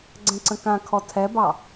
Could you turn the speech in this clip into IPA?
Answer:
ɡ͡ǀ ɛ̃ ǀ ə̃ k ã kʰ ɔ tʰ ɛ b ɑ

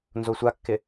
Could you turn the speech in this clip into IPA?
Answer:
n z o sʷ a kː ɪ

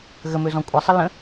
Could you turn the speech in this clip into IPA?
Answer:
ɣ ə m ø z ɔ̃ kʷʼ ɤ sˤ ə l ə̃

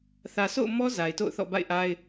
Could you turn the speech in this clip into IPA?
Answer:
θ ä˨ sʰ o̰˦˨ ʊ̯ m ɔ˦ z a˨ ɪ̯ t o̰˦˨ ʊ̯ θ ɔ̰˦˨ b a̰˦˨ ɪ̯ ʔ a˦ ɪ̯

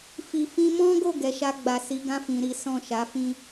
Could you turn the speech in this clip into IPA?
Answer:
f i˨ f ĩ˧ m ɔ̃˦ ɡ o˦˨ ɡ ɛ˨˦ ʃ a˧ ɡ͡b a˨ s i˨˦ ɡ ã˦ f ĩ˧ ɾ i˦ s ɔ̃˦˨ ʃ a˨˦ f ĩ˦

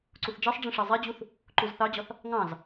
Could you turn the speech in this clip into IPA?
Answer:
ǀ u θ d͡ʒ ɜ sˤ ɖ͡ʐ ĩ ʂ ɜ zˤ ɛ d͡ʑ u θ | ǃ u z θ ɑ d͡ʑ ɒ θ | ŋ ɑ̃ z

